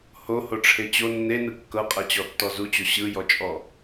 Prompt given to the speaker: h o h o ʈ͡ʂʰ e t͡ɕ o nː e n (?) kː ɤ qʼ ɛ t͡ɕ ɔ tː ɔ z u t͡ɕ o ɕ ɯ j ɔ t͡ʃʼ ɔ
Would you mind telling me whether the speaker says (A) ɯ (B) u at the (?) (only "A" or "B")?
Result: A